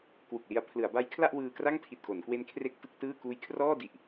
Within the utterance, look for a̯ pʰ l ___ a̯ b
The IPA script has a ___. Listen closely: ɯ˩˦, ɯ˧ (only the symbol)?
ɯ˩˦